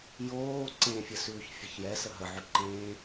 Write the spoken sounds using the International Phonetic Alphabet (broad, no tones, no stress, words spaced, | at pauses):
joː ǀẽfʲəsʉːç fʲəçjɛ səɦəʕʉ ǃẽ